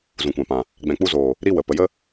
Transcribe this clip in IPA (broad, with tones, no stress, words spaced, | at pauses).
zũ˨kʷã˨pã˨ | ɡ͡bɛ̃˨k͡pu˧zoː˨ | ɾi˦wə˨ pə˨jə˦